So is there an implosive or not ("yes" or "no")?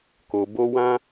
no